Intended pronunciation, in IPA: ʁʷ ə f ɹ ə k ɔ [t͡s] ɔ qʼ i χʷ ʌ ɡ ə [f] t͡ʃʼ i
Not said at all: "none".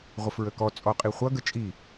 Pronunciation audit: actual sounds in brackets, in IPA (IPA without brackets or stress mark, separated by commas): t͡sʼ, none